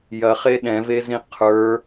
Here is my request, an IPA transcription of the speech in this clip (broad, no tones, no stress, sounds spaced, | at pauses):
j ɐ χ e ɗ ɛ̃ v e z ĩ qʰ ə˞